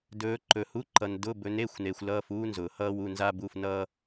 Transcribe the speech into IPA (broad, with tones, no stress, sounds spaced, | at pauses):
d ɵː˨˦ ǃ ɵ˨ h u˧˥˧ ǃ ʌ˨ n d ʊ˧˥˧ b ɵ˨˦ n e˧˥˧ xʷ n e˨ xʷ l ʌː˧˥˧ f uː˥ n z ʊː˨ h ʌː˥ w u˧˥˧ n z a˥ b u˧˥˧ f n ʌː˥